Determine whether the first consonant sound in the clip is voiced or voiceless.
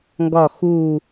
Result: voiced